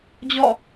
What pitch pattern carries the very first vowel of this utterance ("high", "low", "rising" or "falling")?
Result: falling